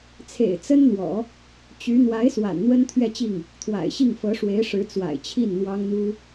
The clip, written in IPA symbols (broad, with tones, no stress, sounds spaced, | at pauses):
t͡sʰ ḛ˨˩ ɪ̯ t͡s ə˥ n n̪ w ɔ̰˨˩˦ | t͡ɕ y˧˥ n̪ w a˧˥ ɪ̯ s w a̰˨˩ n n̪ w ə˥ n t̪ʰ ɥ ɛ˥˧ t͡ɕ i˥˩ ŋ | t̪ʰ w a̰˨˩ ɪ̯ ɕ i˥˩ ŋ f ɤ˧˥ ʂ w e˧˥ ɪ̯ ʂ ɻ̩˧˥ t͡s w a̰˨˩ ɪ̯ t͡ɕʰ i˥˩ n n̪ w ɑ˥ ŋ n̪ u˥